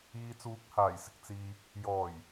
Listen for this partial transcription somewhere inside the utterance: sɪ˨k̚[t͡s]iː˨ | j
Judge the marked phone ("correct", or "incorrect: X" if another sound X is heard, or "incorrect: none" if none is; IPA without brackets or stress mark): correct